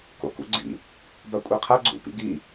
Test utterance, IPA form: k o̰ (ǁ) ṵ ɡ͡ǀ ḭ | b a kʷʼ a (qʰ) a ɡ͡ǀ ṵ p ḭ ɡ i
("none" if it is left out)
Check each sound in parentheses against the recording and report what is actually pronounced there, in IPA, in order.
k, qʰ

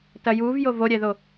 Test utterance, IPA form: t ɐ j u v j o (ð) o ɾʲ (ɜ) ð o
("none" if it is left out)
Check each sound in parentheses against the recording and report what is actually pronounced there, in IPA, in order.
v, ɛ

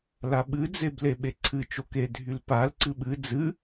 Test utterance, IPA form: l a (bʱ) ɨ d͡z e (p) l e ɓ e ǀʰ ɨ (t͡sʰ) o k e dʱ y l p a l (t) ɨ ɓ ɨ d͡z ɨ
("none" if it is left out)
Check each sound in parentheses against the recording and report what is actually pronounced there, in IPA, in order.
ɓ, b, t͡ʃ, ǀ

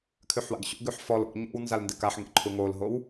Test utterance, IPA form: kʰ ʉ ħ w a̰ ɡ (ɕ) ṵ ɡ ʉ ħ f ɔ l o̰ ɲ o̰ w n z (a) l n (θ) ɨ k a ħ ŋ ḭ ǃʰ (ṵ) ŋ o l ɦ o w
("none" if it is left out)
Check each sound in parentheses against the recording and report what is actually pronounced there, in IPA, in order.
ɕ, a, d, u

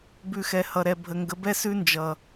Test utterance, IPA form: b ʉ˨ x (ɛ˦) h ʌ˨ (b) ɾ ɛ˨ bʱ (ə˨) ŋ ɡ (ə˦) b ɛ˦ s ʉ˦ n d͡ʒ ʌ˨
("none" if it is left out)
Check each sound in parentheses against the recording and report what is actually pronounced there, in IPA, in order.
ɛ˨, none, ə˨, ə˨˦

